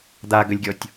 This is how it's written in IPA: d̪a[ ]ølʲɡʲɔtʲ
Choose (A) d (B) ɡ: B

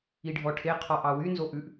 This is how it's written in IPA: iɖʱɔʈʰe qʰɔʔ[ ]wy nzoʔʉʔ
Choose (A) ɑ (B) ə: A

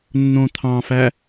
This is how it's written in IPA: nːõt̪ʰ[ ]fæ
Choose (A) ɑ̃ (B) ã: A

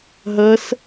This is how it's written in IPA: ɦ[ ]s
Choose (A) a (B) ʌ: B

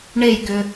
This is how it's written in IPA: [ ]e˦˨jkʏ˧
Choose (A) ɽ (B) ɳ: B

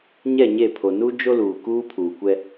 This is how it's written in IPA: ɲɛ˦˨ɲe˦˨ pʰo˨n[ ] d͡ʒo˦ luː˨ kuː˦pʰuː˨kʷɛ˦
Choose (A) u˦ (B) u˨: A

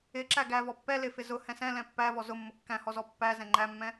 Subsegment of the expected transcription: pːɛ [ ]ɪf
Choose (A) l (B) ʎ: A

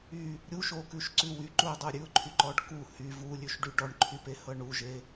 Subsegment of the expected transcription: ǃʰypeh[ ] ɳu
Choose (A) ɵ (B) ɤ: B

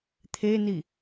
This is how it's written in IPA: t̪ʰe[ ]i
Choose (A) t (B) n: B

